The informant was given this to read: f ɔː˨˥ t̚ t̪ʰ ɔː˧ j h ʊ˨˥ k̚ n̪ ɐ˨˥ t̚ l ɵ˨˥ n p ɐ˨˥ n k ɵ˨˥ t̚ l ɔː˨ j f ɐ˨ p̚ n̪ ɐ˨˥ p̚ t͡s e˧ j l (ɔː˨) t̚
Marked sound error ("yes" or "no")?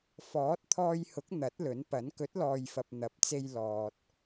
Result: no